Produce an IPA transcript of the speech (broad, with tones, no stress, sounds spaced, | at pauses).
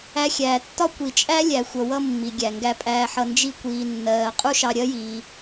æ˧ xʲ æː˩ tː ɒ˥ kʷ i˩ t͡ʃʼ æ˥ lʲ æ˩ xʷ ʌ˩ w ʌ˧ mː i˩ ɡʲ æ˩ ŋ ɡ æ˧ pʼ æː˧ ħ ʌ˧ n d͡ʒ i˧ kʷ iː˩ nː ɜː˩ qʼ u˥ ʃ ɑ˧ ɾʲ ɜ˥ j iː˩